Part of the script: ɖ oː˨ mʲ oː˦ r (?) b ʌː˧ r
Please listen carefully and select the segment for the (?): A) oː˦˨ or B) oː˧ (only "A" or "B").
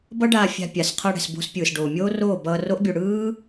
A